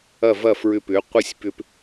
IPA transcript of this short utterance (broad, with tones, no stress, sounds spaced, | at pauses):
ɐ˥˩ v ɐ˥˩ f ɹ ʏ˧ p ʏ˩˥ qʷ ɪ˥˩ sʲ p ʏ˧ p